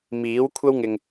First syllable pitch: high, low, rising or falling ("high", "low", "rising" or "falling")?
rising